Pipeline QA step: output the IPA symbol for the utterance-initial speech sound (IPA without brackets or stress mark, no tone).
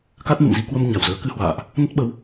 k